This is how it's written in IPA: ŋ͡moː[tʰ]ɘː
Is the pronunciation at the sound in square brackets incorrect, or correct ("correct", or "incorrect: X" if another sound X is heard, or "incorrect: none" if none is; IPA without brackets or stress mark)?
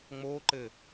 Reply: incorrect: ǃ